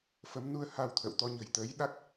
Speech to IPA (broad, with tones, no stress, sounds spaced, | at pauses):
f ə˨˦ m n u˧ ə̯ h a˧ w t̪ʰ ə̰˧˨ w t̪ ɔ˧ ɲ ə̤˨˩ j t̪ əː˨˦ j ɗ a˦˥ k̚